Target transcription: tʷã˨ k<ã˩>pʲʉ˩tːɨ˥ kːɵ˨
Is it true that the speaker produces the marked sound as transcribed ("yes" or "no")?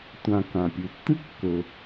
yes